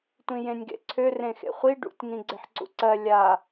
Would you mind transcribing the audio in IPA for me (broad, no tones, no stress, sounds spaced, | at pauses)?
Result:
tʷ ĩ j ẽ nʲ ɡ ḛ ǀʰ ø r ẽ x ḛ χʷ i ɖ ṵ tʲ ŋ ĩ ɡ͡ǀ e ħ ǀ ṵ ǀ ɜ lʲ a